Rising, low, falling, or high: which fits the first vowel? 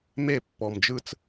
falling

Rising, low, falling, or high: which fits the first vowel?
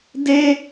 high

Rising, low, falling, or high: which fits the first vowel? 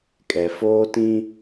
low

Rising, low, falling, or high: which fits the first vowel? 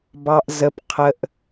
low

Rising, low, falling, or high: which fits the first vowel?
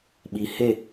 low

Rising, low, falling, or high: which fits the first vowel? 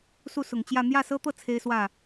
falling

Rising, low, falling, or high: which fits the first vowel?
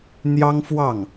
high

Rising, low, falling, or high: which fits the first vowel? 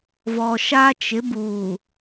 low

